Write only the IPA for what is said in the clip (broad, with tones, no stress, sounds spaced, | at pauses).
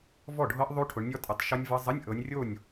v ɔ˥˩ ɖʱ ɤ˦˥ ʔ ðˤ o˦˥ ʈʰ ʊ˨˦ ɳ nʲ ɔ˦˥ tʼ ə˨˦ tˤ ʃ ɔ˦˥ nʲ v ɤ˦˥ zˤ ə˧˥˧ nʲ ʔ ɤ˨˦ nʲ rʲ o˥˩ nʲ